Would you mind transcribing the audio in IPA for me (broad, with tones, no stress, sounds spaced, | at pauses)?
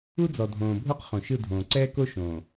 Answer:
u˦ d͡z ɔ˨ dʱ õː˨ bʱ o˦ q χ õ˨ ʃ ɯ˦˨ dʱ õː˨ ǀ ɛː˦ k o˦ ʃ õː˨